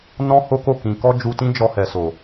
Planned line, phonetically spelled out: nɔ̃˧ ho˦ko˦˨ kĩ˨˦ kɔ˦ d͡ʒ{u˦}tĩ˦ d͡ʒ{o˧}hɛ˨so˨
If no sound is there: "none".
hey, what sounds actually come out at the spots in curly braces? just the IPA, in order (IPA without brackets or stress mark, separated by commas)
u˧, ɔ˧